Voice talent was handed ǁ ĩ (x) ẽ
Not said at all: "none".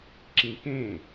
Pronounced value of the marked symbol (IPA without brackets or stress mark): k